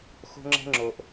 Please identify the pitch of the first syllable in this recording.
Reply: high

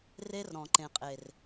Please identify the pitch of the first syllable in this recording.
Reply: high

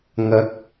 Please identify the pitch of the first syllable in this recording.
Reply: rising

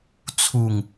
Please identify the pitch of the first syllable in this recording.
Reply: low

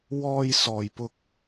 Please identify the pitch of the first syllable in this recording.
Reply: high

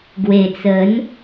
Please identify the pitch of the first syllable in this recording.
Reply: low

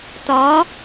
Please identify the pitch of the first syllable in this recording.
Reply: rising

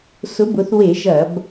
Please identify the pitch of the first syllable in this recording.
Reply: rising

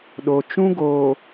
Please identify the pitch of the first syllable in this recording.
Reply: low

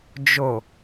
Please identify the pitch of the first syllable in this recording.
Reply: low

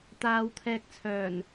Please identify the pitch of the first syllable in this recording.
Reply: low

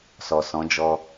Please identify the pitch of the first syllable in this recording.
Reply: low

